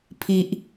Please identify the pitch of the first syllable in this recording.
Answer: low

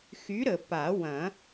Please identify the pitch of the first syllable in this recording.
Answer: rising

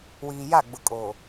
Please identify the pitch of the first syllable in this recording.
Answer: low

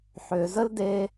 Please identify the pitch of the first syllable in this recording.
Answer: low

